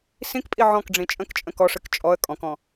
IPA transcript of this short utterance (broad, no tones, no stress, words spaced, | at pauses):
sĩkpʼi ʕɔ̃kɖ͡ʐĩ t͡ʃʼə̃kt͡ʃʼə̃ kɔʂɨk t͡ʃʼɔə̯ kʼɔ̃kɔ̃